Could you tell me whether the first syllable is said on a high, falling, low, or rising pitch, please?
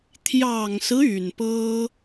low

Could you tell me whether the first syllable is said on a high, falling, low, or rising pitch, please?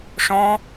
high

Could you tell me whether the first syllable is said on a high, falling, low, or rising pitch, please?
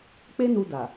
high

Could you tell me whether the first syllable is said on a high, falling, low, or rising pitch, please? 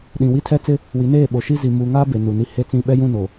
low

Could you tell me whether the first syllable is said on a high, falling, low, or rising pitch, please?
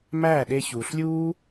falling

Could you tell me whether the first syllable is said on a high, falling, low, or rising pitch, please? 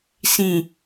low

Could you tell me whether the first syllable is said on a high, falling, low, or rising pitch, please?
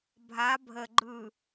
rising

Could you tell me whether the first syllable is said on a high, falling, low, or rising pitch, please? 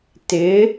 rising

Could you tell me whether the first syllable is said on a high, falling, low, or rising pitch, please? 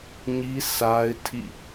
high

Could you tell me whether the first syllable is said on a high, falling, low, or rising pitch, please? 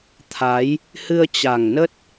rising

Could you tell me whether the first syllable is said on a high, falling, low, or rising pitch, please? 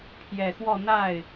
low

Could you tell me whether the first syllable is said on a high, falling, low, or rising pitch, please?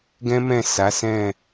high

